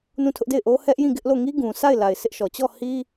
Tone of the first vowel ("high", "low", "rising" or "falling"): falling